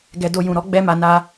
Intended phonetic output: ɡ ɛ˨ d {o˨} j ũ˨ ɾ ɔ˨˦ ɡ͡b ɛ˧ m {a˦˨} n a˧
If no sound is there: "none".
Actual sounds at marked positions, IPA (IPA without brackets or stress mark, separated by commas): o˨, a˨